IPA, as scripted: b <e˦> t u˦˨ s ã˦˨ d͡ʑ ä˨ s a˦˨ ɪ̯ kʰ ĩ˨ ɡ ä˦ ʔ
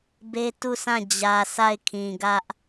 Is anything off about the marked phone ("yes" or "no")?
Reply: no